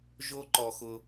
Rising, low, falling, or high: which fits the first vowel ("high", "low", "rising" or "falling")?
high